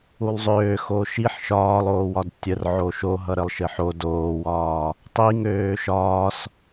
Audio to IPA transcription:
ulˠzˤøː xoʃiħ ʃɒːlˠoːwɒd tʲərʕo ʃoɦʌ ɾəlˠʃɘħo doːwɒː | tˤi ŋøːʃɒːs

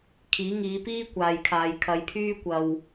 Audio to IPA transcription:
kʰiː˨˥ŋiː˨˧piː˥ kʷaː˨jkʰaː˨jkʰɐ˨˧jpʰyː˥ kʷɐ˨w

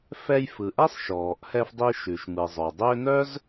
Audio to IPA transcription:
fɛ˧jfɯ˩ʔɛ˥sˤ ʃɔː˩ʔhɛ˧fdˤi˧ ʃʉ˩ʃmɯ˩zˤœ˩dˤʏː˥ nœ˥z

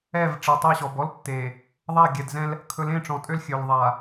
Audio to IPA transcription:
ɛ˦˨v ʈ͡ʂɛ˨tˤɛ˦˨ɕɔ˨b ɔ˦l tːe˨ | ðˤa˦˨ɡʲɛ˨dzɛ̃˦l | kʰɵ˨˦lẽ˦˨ʈ͡ʂɔ̃˨ tʼø˦lxʲø˨l ðˤa˨

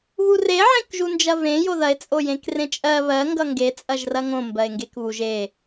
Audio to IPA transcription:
βure ʕẽkʒund͡ʒɐvẽ joðɐe̯ t͡sʼojẽkrẽt͡ʃʼɜ βɜ ŋɡʌŋɡe t͡sʼɐʒrɐŋõ mbɜe̯ŋɡekβuʒ e

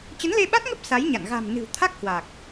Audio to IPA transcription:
t͡ɕə˨˦nle˧ɓa˦˥t̚ŋə˦˥p̚ sa˨˦jɲa̰˧˨n ɣa̤˨˩m nɨ̤˨˩w t̪ʰa˦˥k̚hwa˨˩k̚

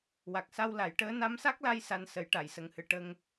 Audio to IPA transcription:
wa˨˩k̚sa˧wla˨˩˦jʈəː˧˥ na˧˥msa˦˥k̚la˧j sa˧n sə˨˩˦jʈa˨˩˨jsə˨˩ŋhɨ˨˩˨ ʈə˧ŋ

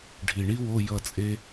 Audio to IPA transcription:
ɖʱi˨˩ɳi˥wo˧˥˧ jʌ˥˨t͡sʼe˥

